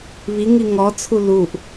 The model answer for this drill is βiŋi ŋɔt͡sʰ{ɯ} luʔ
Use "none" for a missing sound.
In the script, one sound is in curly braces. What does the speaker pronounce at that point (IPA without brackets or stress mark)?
u